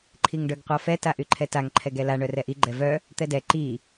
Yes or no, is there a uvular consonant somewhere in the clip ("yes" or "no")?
yes